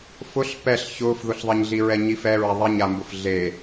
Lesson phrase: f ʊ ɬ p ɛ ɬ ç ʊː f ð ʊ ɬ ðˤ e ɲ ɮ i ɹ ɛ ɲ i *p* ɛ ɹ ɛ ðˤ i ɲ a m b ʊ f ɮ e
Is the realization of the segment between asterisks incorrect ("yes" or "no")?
yes